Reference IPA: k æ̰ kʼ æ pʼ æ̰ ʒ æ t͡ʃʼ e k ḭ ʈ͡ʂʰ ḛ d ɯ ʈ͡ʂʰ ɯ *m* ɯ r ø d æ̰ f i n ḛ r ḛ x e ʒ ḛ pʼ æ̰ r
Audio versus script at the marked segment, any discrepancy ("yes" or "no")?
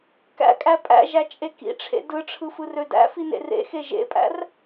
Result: yes